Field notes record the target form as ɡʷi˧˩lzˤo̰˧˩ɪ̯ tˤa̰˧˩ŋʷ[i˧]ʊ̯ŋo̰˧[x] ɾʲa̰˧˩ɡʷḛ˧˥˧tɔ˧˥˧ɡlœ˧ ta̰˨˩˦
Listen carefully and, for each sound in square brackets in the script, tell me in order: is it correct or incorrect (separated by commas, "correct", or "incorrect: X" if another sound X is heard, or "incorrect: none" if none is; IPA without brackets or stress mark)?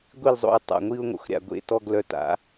correct, correct